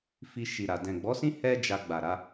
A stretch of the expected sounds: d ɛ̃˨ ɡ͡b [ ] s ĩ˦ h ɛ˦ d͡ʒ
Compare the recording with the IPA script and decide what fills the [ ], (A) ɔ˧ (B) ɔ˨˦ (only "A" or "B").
B